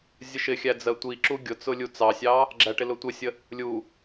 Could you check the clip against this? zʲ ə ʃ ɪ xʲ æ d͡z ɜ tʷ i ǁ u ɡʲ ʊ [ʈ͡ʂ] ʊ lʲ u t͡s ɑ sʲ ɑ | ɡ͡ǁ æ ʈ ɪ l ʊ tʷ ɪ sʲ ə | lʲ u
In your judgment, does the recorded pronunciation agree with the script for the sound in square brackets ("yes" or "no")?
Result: no